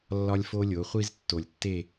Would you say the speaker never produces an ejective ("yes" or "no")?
yes